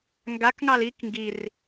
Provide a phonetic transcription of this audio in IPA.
ŋɡakŋɑl ik ŋɡir

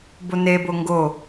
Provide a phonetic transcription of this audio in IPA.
bonebo ŋɡo

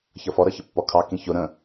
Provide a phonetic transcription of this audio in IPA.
çʌfɔɾʌ çəpːɔkʰɑ kĩçʊ ɾə̃

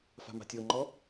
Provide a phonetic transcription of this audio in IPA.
fa̤ma̤tʲoŋ͡ǃɔ

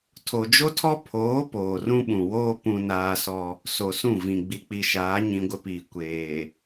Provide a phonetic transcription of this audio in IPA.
tʰo˨d͡ʒo˦tʰɔ˦ pʰoː˨˦ poː˨rũ˦ɓũ˨ woː˦ pũ˨ naː˦sɔ˦ | so˨sũ˦˨vĩ˨ ɡ͡bi˨k͡pi˨ʃaː˨˦ ɲĩ˦ɡʷɪ˦piː˨ kʷeː˨

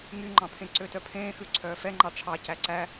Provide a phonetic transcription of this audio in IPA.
ŋyŋ͡ǃɑ̃pʰẽ ǀøtœpʰẽːxʉ ǀʰœːfɛŋ͡ǃɑ ʈ͡ʂʰɑcæ ǀæ

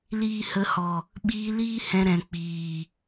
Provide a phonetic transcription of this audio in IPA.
liː˧hə˧hɔ˨ | ɓiː˧liː˦ hɛ̃˧ɾɛ̃˨ k͡piː˨

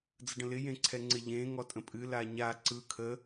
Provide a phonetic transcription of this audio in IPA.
d͡zəɖə̃lɪ jẽǀʰɛŋ͡ǀɪ ʎẽ ŋɔtʼə̃pʼɨ laɲa ǀɯ kʰə

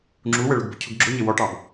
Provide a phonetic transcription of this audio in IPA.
ŋ͡ǁuwəɭʊɡbʊ cʰʊɡɡ͡ǁʊɲɪ wɔʈɑb

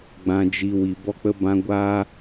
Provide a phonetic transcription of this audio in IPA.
ɡ͡bã˨ d͡ʒi˨ wi˨bɔ˦k͡pə˦bã˦ ɡʷaː˦

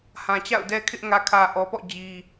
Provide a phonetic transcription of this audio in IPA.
hã˨t͡ɕa̰˦˨ʊ̯dɛ˦kʰɪ˦ʔ ŋä˨kʰä˨ʔɔ˨pɔ̰˦˨ d͡ʑi˦

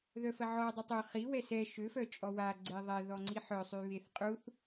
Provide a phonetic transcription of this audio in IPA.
ðœfəʕɔ dˤutˤø χi wɛsɛ ʃø fœt͡ʃʼɔwa ɡ͡ǀeðˤɛ ðɔŋ͡ǀiħœ sˤyβeθqʼuθ

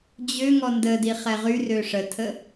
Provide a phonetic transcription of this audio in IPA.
d͡ʑøŋɔ ndədi χɛʁyrø ʂətʰə

